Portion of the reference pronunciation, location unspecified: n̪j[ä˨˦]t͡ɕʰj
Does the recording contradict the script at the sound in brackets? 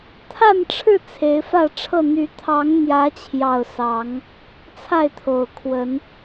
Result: no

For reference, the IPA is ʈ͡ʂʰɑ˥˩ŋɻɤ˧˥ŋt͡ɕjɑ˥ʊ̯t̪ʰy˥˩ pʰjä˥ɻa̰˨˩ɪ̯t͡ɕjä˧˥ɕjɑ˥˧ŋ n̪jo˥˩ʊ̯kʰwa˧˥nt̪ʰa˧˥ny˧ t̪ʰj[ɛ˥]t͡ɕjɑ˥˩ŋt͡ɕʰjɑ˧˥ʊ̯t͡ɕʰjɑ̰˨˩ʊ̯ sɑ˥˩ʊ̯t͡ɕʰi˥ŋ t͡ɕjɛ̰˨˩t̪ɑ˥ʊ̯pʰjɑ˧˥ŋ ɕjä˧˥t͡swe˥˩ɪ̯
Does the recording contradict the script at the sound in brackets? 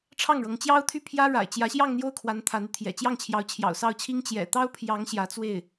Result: yes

